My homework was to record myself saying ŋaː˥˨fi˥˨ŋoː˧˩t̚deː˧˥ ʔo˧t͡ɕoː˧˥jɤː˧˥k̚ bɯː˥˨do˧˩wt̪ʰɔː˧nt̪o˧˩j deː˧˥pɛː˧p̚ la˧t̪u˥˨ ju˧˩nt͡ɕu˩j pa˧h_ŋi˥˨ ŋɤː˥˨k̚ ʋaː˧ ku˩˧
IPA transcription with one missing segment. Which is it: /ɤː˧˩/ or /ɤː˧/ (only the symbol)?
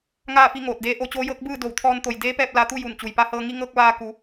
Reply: ɤː˧